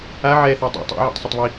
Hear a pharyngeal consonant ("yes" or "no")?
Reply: yes